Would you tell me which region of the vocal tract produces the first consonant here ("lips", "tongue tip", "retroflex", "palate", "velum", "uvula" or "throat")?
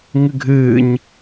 velum